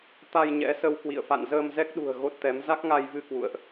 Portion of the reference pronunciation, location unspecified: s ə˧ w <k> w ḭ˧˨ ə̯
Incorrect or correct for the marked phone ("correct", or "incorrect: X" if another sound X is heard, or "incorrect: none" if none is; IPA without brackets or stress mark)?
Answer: correct